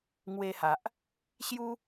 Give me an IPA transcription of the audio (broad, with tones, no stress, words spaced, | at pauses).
ŋwe˧ha˨ʔ | ɕju˦